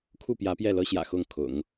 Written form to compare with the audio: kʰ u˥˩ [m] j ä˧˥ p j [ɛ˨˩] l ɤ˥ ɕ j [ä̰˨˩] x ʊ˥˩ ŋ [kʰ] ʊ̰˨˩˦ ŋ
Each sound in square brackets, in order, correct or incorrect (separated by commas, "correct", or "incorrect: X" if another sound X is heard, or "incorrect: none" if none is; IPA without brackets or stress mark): incorrect: p, incorrect: ɛ˥˩, correct, correct